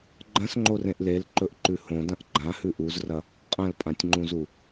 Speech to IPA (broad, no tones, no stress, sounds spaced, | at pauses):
ɡ͡ǃ ɐ̃ s ŋ͡ǃ o r ẽ ʔ l e l ǃ ɵ ʔ ǃ ʉ h õ d ɐ̃ ʔ ɡ͡ǃ ã h ʉ ʔ u z r ɐ | qʼ ɐ̃ l pʼ ã tʲ ŋ͡ǃ ũ z u